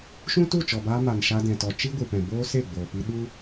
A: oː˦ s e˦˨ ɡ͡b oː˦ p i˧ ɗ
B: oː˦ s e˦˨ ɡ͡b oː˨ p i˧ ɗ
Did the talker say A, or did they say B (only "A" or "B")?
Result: B